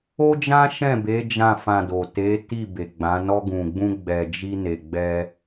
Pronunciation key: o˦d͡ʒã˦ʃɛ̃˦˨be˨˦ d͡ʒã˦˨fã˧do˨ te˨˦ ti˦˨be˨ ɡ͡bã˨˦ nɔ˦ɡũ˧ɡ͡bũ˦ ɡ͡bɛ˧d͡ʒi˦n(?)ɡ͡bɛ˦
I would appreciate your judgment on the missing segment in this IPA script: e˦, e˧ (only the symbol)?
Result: e˧